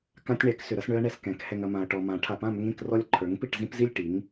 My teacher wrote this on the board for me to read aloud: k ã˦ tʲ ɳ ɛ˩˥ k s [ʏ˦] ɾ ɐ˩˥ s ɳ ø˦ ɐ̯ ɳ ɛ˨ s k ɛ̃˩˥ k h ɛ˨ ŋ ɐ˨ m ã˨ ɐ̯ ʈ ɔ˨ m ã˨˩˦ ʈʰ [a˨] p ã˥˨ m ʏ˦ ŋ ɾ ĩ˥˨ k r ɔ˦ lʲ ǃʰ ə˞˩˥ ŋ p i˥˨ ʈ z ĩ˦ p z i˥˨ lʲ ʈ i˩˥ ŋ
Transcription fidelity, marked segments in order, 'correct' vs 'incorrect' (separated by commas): incorrect, correct